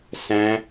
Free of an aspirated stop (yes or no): yes